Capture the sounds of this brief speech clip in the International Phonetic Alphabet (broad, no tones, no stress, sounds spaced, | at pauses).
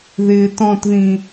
ð ɪː t ɔ̃ t ð ĩ